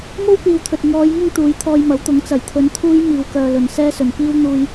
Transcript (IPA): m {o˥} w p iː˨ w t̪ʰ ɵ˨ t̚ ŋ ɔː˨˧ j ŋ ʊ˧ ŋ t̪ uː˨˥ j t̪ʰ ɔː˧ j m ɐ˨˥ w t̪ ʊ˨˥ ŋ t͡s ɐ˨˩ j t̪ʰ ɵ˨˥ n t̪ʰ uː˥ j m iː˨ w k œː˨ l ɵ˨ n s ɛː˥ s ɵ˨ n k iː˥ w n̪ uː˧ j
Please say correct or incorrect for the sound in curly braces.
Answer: correct